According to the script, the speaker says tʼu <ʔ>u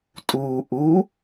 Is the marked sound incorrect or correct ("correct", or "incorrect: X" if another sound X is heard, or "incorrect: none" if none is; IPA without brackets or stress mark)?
correct